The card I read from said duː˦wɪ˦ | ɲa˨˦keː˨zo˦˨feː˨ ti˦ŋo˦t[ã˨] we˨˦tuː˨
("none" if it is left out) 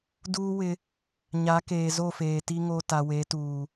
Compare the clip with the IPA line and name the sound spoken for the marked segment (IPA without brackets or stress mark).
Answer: a˨